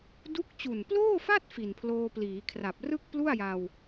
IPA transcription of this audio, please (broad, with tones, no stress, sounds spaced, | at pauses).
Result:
d u˦˥ k̚ t͡ɕ u˨˩ n p l oː˥˩ f a˥˩ t̚ f i˨˩ n pʰ l oː˧ p l iː˩˦ kʰ r a˨˩ p̚ r ɯ˥˩ k̚ p l u˥˩ a̯ j a˧ w